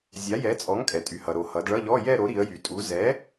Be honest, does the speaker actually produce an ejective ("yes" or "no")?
yes